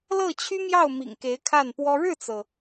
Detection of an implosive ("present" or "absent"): absent